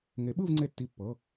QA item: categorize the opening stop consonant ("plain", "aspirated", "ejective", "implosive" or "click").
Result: implosive